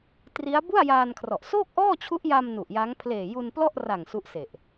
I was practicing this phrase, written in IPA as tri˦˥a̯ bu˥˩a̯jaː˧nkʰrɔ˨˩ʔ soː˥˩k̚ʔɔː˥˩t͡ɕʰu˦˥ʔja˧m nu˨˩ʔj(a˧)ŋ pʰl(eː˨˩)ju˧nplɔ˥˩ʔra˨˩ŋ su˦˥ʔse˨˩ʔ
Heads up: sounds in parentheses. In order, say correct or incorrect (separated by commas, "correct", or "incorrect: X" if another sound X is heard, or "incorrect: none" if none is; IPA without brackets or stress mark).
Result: incorrect: a˦˥, correct